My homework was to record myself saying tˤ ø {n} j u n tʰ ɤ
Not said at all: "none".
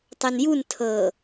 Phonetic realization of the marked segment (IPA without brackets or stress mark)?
n